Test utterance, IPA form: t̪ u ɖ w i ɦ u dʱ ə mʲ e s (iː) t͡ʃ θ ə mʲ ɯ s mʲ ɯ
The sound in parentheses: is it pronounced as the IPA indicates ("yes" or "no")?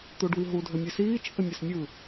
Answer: yes